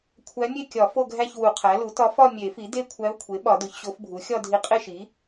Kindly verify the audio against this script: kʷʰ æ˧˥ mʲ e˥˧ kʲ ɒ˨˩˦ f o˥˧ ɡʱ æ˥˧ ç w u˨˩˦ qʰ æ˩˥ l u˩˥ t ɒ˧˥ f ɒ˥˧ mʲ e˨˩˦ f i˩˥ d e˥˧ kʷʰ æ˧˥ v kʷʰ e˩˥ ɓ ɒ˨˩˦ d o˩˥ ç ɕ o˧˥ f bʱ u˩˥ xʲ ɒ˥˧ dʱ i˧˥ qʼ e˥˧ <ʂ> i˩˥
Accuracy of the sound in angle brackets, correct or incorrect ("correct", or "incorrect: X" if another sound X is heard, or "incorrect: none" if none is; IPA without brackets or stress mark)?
incorrect: ʃ